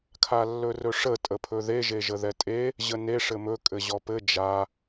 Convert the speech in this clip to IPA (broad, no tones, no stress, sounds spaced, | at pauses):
kʰ a lː ɵ r ɵ ʂ ə tʼ ə pʰ ɵ ð e ʒ e ʒ ə ð ɛ tʼ e | ʑ ə n e ʂ ɘ m ɵ kʼ ɘ ʑ ɔ p ɘ d͡ʒ a